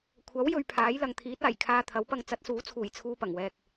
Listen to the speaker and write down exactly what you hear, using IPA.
kʷʰ ɐ˨˥ w j ɵ˧ ɥ pʰ aː˨˥ j l ɐ˨ ŋ t̪ʰ iː˨˥ t̚ aː˨˩ j kʰ aː˧ t̪ʰ ɐ˨˥ w p ɐ˧ ŋ t͡s ɐ˨˥ t̚ s uː˨˥ t͡sʰ uː˨˩ j t͡sʰ uː˧ p ɐ˨˩ ŋ w ɛː˨ k̚

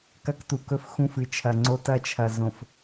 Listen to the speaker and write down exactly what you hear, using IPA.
k ɐ˦ k t u˨ k ɵ˦ f x ũ˦ f ɨ˨ t͡ʃʰ ɐ˨ ŋ͡ǀ o˦ t ɐ˦ t͡ʃʰ ɐ˨ z õ˨ f

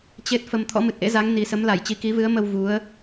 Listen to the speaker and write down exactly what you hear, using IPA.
t͡ɕ e˦˥ t̚ f ə˧ m t̪ʰ ɔ̰˧˥ m ɨ˨˩ t̚ ʔ ḛ˧˥ z a˨˦ ŋ n i˨˩ s ə˨˦ m l a˧˩ j t͡ɕ i˨˦ k i˨˦ v ɨ˨˦ ə̯ m ə˧ w v u˨˦ ə̯

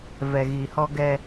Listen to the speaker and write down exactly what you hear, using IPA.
v ɛ˨ ɣ i˨ h ɔ˦ ɡ ɛ˦

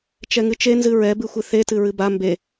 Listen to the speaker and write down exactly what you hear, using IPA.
t͡ʃ ɛ ŋ ɨ t͡ʃ e n z ɨ ɹ ɛ b ɨ xʷ ɨ θ e t ɨ ɹ ɨ b a m b e

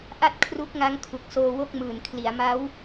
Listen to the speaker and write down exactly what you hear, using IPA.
ʔ a˥˩ t̚ kʰ r u˦˥ k̚ ŋ a˦˥ ŋ kʰ u˨˩ k̚ s oː˧ w o˥˩ k̚ m ɯː˨˩ n kʰ l i˩˦ a̯ m a˦˥ w

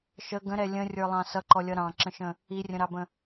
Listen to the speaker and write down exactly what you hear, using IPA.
ʃ ə ɡ ə̃ ɾ ɛ lʲ ə̃ rʲ ə˞ lˠ ɑ̃ s ʌ ǃ ɔ lʲ ʌ ɾ ɑ̃ ǁ ə̃ ʃ ə̃ | i rʲ ə̃ ɾ ɑ b ə̃

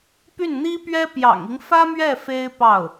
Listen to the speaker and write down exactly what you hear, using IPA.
p y˥˩ n n̪ i˥ p ɥ ɛ˥ p j ɑ̰˨˩ ŋ i˦ ŋ f ä˥ m ɥ ɛ˥˩ f e˥ ɪ̯ p ɑ˥˩ ʊ̯

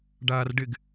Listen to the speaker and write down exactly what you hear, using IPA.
ɖ aː r ɖ ɪ ɡ

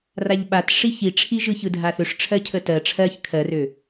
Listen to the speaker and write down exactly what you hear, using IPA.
r a ʎ ɓ a t ʂ i ç i ʈ͡ʂʰ i ʒ ɯ ç ɯ dʱ a θ ø ʂ ʈ͡ʂʰ ɜ cʰ ə t ɜ ʈ͡ʂʰ ɜ ç kʰ ɜ r ø

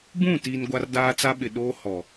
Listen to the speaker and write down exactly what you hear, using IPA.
b ũ˦˨ t i˨ n ɡʷ a˦ r d aː˦ t͡s a˦ ɓ ɪ˨ ɗ oː˦ h ɔ˨

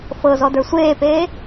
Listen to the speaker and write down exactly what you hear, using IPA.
f ɤ z ɔ d ə˞ sʷ eː p eː

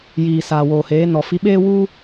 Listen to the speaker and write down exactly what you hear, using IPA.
j iː˨ s aː˨ w oː˨ h eː˨˦ n ɔ˨ f i˧ ɓ eː˦ w u˦

